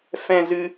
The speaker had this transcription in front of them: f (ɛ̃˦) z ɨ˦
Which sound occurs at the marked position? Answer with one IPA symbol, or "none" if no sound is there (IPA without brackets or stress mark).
ɛ̃˦